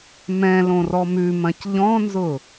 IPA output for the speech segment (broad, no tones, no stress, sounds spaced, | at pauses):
m ɛ̃ l õ r ɔ m ʉ m ɐ̃ c ʎ ɔ̃ n z ʊ